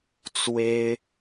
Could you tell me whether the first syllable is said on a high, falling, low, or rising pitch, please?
high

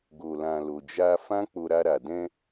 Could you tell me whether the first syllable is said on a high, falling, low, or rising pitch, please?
low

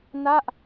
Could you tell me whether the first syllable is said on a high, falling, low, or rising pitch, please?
falling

